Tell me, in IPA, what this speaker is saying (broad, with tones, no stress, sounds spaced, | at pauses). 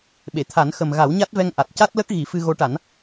ɓ e˨˩˨ t̪ʰ a˨˩˦ n x ə˨˩ m ɣ a˨˩˦ w ɲ a˦˥ t̚ v ɛ˧ ŋ ʔ a˨˩ t̚ c a˦˥ t̚ l ə˦˥ k̚ ɣ i˨˩˦ f ɨ˧ ɣ o˧˥ ʈ a˨˩˦ n